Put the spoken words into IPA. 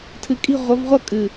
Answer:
tʰ ɨ˨ kʼ i̤˦˨ ʁʷ ʌ˨˦ v ʁʷ ʌ˦ kʼ ɨ˨

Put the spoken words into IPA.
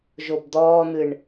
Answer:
ʒ o b d̪ ɔː n̪ ɨ ɳ

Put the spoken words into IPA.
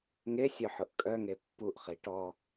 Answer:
ŋ e sʲ œ ħ ʊ ʔ kʼ œ ŋ e pː u ʔ χ i ʈ ɔ

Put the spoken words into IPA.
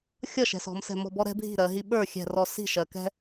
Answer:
xʲ ʌ˥˩ ʃ ɛ̤˩˧ s ɔ̤˩˧ m s ɛ̤˧˩ m ɔ̤˥˩ b ɔ˦ ɾ ɛ̤˦ bʱ i̤˥˩ ɾ ɜ˩˧ ɦ i˦ ɓ ə˞˥˩ xʲ ɛ̤˧˩ r ɔ˧˩ s i̤˥˩ ʃ ɜ˩˧ k ɛ̤˦

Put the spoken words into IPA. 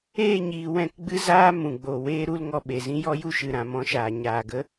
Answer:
eː˦˨ ɲ iː˨ w ɛ̃˦˨ k ɡ͡b ɨ˦ z aː˦ m ũ˨ ɡ͡b o˨ w eː˦ ɾ u˦ l ŋ ɔ˧ ɓ e˨ z ĩ˦ j ɔ˦ j u˦ ʃ ɨ˨ ɾ ã˨ m ɔ̃˧ ʃ aː˨ ɲ aː˨ ɡ ə˦

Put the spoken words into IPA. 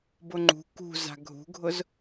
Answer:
b ʊ ŋ͡ǃ ṳ k ṳ z a̤ ɡʱ ṳ ɡʱ ʊ z

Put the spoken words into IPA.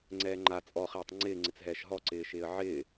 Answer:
ŋ͡ǀ ɛː ŋ͡ǃ a t͡sʼ ɔ χ ɛː tˤ ŋ͡ǀ ɪː ŋ͡ǀ ɪ t͡s ɦ ɛː ʃ ɦ ɔ ǀ ɪː ʃ ɪː ə̯ ʕ ɪː

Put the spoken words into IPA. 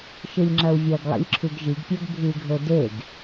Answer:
ʃ ɨ lʲ ŋ͡ǁ ɐ u̯ vʲ ɐ ɡ lˠ ḭ lʲ ǁʰ ʉ ɡ ʒ i ɡ pʲ o ɡ bʱ ɨ ɡʱ ɵ d e ɡ

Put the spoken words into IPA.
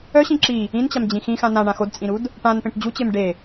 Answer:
œ ɕ ĩ ǁ i | ĩ n t͡ɕ a m d͡ʑ ĩ x ĩ x ã n ã ɳ ã x o d t͡sʼ ĩ ɾ u d | ʈ ã n p ẽ ʈ d͡ʑ u t͡ɕ e m ɖ e

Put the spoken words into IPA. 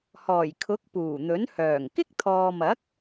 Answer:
h ɔː˨˩ j kʰ ʊ˨˥ k̚ p uː˨˩ n̪ ɵ˨˥ n h œː˨˩ ŋ k ɪ˥ k̚ t̪ʰ ɔː˨ m ɐ˨˥ k̚

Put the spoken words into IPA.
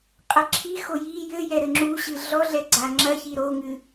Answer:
qʼ ɐ ǁʰ i x o j i j ɘ j ɛ ɾ ɘ ŋ͡ǁ u ɕ ɨ ɮ ɔ ɮ ɛ ɡ͡ǀ a ŋ͡ǁ ɐ ç i ɾ o ŋ ɨ

